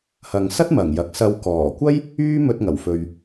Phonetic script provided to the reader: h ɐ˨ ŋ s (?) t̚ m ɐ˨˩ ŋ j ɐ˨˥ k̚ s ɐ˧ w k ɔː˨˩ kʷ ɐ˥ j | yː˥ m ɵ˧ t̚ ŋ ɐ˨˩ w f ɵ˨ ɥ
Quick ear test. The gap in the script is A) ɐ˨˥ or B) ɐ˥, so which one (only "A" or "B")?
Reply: B